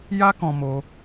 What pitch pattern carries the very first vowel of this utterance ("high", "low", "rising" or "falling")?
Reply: high